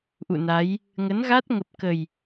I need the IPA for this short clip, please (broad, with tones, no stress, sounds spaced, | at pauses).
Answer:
ʔ ṵ˧˨ n a˨˦ j | ŋ ə˨˦ n ɣ a˦˥ t̚ ŋ ə˨˩ p̚ k ə˨˩ j